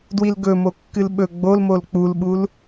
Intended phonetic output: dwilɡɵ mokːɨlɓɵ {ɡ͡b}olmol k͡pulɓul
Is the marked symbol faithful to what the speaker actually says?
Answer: yes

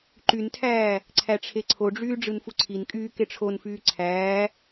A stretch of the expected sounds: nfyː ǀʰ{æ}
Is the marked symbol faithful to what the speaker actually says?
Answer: no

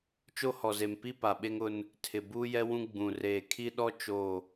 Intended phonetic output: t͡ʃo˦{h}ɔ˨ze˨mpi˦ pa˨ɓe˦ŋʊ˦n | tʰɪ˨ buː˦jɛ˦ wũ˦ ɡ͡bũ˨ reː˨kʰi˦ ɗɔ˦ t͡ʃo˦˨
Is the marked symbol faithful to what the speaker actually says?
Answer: yes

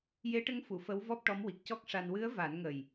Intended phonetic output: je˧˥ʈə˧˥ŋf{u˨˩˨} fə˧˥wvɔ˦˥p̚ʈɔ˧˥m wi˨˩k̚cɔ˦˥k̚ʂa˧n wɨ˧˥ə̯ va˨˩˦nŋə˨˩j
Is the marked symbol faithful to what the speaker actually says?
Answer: yes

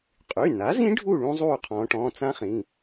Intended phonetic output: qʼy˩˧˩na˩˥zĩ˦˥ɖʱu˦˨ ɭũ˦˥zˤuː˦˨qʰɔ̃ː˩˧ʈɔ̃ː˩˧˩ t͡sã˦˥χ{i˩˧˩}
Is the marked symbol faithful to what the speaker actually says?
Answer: no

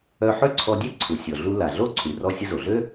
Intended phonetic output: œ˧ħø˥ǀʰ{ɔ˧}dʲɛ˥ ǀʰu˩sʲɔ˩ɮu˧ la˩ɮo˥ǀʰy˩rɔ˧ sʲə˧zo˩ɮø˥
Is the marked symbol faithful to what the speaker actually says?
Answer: yes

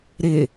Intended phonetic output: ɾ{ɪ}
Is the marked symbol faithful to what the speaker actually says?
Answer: yes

